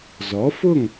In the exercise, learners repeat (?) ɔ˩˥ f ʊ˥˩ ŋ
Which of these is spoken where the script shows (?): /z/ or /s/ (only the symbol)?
z